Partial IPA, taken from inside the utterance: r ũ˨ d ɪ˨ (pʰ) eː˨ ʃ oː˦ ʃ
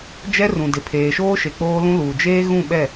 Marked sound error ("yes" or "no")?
no